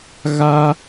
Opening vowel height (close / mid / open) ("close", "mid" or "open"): open